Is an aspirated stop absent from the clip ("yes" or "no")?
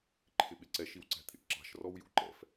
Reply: no